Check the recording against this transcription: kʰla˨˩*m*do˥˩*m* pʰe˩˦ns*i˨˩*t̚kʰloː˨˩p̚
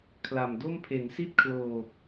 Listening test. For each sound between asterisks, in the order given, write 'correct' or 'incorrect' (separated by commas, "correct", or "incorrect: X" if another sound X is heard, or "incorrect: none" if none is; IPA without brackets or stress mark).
correct, correct, incorrect: i˥˩